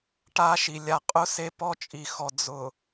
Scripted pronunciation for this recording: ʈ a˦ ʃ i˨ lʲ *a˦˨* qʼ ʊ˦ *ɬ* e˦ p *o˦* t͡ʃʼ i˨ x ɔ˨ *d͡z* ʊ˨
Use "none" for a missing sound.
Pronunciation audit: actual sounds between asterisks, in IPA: a˨, s, ɔ˦, d͡z

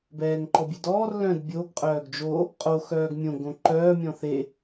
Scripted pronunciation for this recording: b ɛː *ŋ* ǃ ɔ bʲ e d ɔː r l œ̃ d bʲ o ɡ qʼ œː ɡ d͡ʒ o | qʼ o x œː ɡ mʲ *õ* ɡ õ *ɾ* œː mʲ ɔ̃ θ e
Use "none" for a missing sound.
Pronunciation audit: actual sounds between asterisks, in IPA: ŋ, õ, ǃ

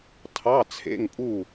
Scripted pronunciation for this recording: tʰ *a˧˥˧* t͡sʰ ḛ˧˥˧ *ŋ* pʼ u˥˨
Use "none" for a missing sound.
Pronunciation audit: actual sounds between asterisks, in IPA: ɑ˧˥˧, ŋ

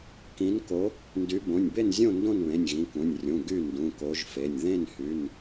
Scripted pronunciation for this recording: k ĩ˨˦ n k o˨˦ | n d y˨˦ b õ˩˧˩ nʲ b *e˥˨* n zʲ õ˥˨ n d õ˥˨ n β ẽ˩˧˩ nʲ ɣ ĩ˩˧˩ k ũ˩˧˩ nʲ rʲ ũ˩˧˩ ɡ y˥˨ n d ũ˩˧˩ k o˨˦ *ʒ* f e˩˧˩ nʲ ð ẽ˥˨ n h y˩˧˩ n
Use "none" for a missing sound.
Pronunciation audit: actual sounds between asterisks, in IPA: e˥˨, ʒ

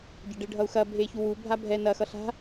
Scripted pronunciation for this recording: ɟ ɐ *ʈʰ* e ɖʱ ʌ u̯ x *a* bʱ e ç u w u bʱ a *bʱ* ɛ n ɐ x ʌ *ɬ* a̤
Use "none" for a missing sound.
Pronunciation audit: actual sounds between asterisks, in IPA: ɖ, ɐ, bʱ, ɬ

